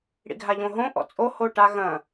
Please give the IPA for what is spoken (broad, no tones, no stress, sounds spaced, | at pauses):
ɽ ḭ ɡʱ a ʎ õ ɦ õ ʔ ɔ̰ t͡sʼ o h o ʈ a ɣ ɐ̃